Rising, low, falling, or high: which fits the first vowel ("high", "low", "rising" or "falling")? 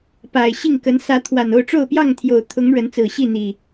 low